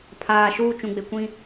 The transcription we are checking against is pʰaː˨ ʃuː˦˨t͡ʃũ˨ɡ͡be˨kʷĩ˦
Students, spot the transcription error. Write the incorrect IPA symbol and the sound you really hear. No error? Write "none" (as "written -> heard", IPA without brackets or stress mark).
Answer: none